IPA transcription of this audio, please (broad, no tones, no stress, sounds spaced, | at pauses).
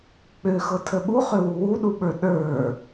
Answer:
k͡p ø x ɤ tʰ ə ɓ u χ ø w u w u ɗ u ɓ ə˞ ɗ ə˞